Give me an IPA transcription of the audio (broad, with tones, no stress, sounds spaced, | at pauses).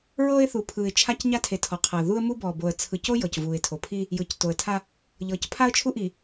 ɹ ɤː˦ ɪ̯ θ u˨ pʰ ɯː˨ ɪ̯ t͡ʃʰ a˦ c ɲ a˦ tʰ e˨ tʰ ɔ˨ qʰ ɤː˨ ð u˦ ə̯ m u˦ b ɔ˨ b o˨ ə̯ t͡sʰ ɯ˨ c o˦ j ɤ˨ c v uː˨ ɪ̯ tʰ o˨ pʰ i˦ | j ɯː˨ c t o˨ ə̯ tʰ a˦ | ʎ ɤː˨ c pʰ a˦ ə̯ t͡ʃʰ u˦ ʔ i˨